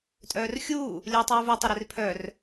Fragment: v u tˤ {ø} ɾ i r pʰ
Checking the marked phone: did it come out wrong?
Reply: no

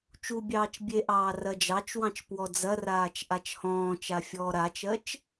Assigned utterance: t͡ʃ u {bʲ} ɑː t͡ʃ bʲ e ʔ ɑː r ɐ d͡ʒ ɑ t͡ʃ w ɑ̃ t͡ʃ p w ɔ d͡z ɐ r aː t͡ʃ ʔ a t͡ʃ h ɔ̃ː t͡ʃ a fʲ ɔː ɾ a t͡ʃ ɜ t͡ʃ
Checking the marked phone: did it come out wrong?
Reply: no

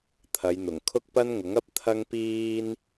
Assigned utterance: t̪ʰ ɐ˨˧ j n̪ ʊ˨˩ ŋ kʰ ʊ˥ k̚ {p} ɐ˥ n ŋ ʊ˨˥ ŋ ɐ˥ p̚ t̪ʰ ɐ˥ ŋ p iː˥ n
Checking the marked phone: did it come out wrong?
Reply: no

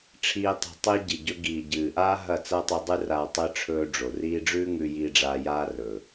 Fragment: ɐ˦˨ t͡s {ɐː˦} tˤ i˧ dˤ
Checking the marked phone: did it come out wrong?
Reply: no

